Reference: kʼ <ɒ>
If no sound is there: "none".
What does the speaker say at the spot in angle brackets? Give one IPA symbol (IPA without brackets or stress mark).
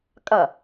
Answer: ʌ